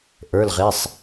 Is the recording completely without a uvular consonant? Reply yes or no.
no